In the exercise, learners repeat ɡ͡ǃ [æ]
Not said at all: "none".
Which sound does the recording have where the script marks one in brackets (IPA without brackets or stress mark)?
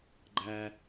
æ